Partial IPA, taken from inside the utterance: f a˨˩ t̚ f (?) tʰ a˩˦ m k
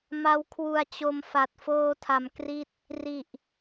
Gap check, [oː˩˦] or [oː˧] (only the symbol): oː˧